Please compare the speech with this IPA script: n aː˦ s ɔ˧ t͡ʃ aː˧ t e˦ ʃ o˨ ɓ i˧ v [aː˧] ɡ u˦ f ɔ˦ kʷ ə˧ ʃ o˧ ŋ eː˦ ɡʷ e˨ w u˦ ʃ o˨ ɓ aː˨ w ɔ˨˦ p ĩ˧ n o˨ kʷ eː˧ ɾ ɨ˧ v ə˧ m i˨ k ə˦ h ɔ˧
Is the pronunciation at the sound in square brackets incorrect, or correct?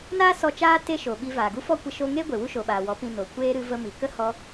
incorrect